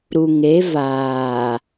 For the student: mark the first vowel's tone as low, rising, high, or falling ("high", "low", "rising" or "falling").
low